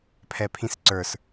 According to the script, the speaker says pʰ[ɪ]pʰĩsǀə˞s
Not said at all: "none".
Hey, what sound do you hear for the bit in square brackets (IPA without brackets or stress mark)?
ɛ